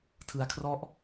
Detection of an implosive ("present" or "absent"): absent